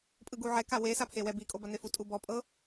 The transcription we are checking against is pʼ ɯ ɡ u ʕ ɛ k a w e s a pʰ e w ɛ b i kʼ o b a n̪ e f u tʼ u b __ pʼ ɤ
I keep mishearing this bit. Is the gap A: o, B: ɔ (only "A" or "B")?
B